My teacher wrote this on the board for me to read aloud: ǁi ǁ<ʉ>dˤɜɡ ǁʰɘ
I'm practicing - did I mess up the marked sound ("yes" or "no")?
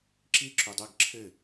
yes